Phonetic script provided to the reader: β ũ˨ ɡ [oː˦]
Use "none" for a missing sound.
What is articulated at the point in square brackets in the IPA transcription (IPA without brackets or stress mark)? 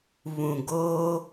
oː˦